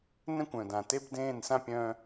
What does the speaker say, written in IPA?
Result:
n ɛ̃˦ kʷ œ̃˨ d ã˨ t e˦ b d ẽː˦˨ n s ã˦ pʲ œ̃˦

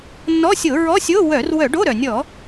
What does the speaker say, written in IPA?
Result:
nː ɔ˧˥˧ sʲ o˧˩˧ ɹ ɔ˧˥˧ sʲ o˧˥˧ w œ˧˩˧ r w œ˧˩˧ ɖ o˧˥˧ ɾ œ˩ nʲ ɔ˧˩˧

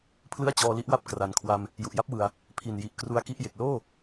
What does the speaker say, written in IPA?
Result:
pʰ l ɯ˥˩ a̯ t͡ɕ ɔː˧ l i˦˥ ʔ w a˥˩ p̚ k r a˩˦ n kʰ w a˧ m | j u˨˩ ʔ j a˥˩ p̚ w ɯ˨˩ a̯ | pʰ i˨˩ n j i˨˩ ʔ k r u˧ a̯ k i˦˥ ʔ j e˨˩ k̚ l oː˥˩

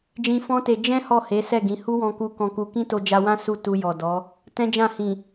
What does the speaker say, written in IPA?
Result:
d͡ʒ ĩ˧ f ɔ̃˦ t e˧ d͡ʒ ɛ̃˦ h ɔ˦˨ h e˨˦ s ɛ˦˨ ɡ ĩ˨˦ h u˦ w ɔ̃˧ k u˧ k ɔ̃˦ k u˦ k ĩ˦ t o˧ d͡ʒ a˧ w ã˦ s u˦˨ t u˧ j ɔ˨ d ɔ˨˦ | t ɛ̃˦ d͡ʒ ã˦˨ h ĩ˨

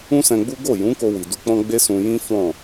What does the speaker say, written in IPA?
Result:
ũ˦ s ɛ̃˧ ɡ͡b u˦ ɡ o˦˨ j ũ˨˦ k o˧ w i˨ d u˧ k͡p ɔ̃˦ ɡ͡b e˦ s ũ˧ j ĩ˦ f ɔ̃˦˨

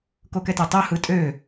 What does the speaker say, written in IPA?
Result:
k o k ɛ t e tˤ o h ɯ tʼ ø

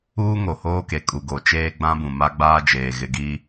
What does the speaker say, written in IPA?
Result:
uː˦ ŋ o˨ h oː˦ k e˨ kʼ u˨ ɡ o˨ t͡ʃ eː˦ ɡ͡b ã˦ b ũ˨ m a˦ ɡ͡b aː˦ d͡ʒ eː˨ ɣ ɪ˦ ɡ i˦

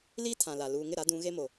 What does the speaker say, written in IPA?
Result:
l iː˦ tʰ ã˨ l a˨ l uː˨ ŋ ɪ˦˨ ɾ a˨˦ d ũ˨˦ ɣ e˦ m o˨

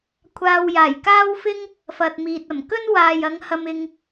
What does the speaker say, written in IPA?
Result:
kʷʰ aː˧ w j aː˨˩ j k aː˥ w f ɪ˥ ŋ | f ɐ˨ t̚ m iː˨ t̚ ɐ˨˩ m k ɵ˥ n w aː˨ j ɐ˨˧ ŋ h ɐ˧ m ɪ˧ ŋ

